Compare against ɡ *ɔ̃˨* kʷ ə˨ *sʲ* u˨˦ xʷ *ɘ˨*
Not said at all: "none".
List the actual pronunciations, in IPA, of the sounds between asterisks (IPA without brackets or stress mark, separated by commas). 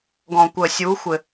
ɔ̃˨, sʲ, ɘ˨